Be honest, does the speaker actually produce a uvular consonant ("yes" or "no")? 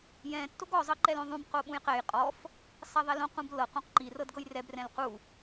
yes